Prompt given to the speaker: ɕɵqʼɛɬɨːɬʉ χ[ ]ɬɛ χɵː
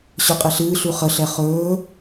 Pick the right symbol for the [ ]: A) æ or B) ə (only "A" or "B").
B